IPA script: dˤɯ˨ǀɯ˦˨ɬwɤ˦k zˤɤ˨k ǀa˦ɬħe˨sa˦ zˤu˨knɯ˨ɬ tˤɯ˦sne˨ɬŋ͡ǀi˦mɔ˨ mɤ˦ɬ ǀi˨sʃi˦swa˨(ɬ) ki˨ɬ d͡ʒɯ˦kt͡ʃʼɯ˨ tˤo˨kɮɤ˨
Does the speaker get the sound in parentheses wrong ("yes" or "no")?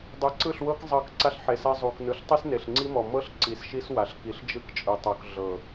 no